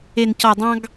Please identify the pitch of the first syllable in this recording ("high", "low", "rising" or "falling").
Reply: high